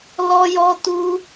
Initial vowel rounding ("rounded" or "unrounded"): rounded